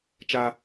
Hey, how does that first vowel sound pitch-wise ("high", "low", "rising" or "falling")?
high